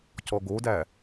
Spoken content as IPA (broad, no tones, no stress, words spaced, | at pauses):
cɔɡodæ